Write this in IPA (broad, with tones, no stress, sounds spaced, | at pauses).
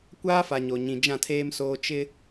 kʷ aː˦ f a˨ ɲ o˨ ɲ ĩ˨ d͡ʒ ã˦˨ tʰ eː˦ m s oː˦ t͡ʃ ɪ˦